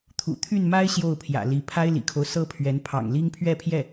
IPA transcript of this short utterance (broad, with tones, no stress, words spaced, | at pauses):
t̪ʰṵ˨˩t̪ʰy˥˩nma˥ɪ̯ ɕjo˥˩ʊ̯pʰjä̰˨˩li˧˥ pʰa˥ɪ̯lḭ˨˩kʰo˦ʊ̯ sɤ˥pʰɥɛ˧˥n pʰɑ̰˨˩ŋli˥ŋ pʰɥɛ˥˧pʰjɛ˥˩